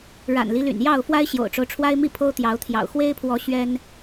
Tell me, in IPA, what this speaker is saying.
ɻ a̰˨˩ n l i˦ l y̰˨˩ n j ɑ˥˨ ʊ̯ f w a˦ ɪ̯ ɕ j o̰˨˩ ʊ̯ ʈ͡ʂ o˦ ʊ̯ ʈ͡ʂʰ w a˦ ɪ̯ m i˥˨ pʰ o˦ ʊ̯ t̪ j ɑ˨˦ ʊ̯ t̪ʰ j ɑ̰˨˩ ʊ̯ x w e˦ ɪ̯ pʰ w ɔ˨˦ ɕ ɥ ɛ˦ n

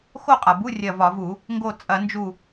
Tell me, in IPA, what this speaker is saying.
x o˥˧ qʼ a˩ b u˧˥˧ rʲ ɐ˧˩ v ɒ˧˩˧ v u˧˩˧ | ŋ ɡ o˧˩ t͡sʼ ɐ˧˩˧ n d͡ʒ u˧˩

